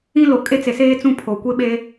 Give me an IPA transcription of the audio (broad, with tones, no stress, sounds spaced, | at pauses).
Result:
ĩ˦ l o˨ kʼ e˦ t͡s e˨ s eː˦ t͡s ũ˦˨ pʰ o˨ kʷ e˦ ɓ e˦